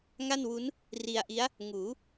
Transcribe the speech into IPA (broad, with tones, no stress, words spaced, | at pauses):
ŋa˥˩nwu˦˥n | ri˧a̯ʔi˦˥a̯ | ŋuː˩˦